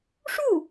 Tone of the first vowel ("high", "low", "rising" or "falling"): falling